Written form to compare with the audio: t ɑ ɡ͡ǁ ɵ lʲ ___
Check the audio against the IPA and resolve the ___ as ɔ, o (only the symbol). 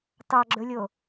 o